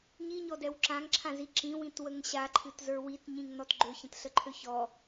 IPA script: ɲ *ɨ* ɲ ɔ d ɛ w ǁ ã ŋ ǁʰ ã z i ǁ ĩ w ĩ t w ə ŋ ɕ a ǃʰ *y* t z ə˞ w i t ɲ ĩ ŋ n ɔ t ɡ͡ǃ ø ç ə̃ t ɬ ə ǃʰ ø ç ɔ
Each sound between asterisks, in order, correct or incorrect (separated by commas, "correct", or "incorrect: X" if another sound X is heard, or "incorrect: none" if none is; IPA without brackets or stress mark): incorrect: i, incorrect: ɨ